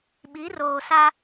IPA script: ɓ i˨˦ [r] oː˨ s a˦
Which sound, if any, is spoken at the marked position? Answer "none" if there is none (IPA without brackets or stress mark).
r